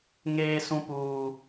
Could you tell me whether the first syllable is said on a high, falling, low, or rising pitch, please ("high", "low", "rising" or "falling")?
high